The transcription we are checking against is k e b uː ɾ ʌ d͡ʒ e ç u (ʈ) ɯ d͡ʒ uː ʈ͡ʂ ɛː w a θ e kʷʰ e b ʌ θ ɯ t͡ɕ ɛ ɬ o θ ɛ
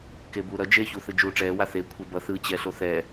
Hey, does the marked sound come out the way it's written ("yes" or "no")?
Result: no